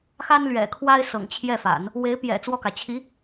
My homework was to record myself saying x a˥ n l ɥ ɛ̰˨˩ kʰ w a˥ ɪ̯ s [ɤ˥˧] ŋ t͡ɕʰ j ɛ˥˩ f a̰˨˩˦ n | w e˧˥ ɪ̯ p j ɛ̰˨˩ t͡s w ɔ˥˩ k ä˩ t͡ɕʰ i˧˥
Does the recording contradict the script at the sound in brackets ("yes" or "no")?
yes